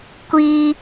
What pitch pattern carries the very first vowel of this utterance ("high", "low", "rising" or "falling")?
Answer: high